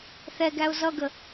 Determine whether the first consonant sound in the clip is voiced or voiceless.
voiceless